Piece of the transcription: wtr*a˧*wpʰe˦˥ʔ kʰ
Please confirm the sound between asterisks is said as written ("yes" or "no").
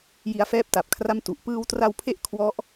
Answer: yes